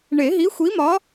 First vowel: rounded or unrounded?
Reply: unrounded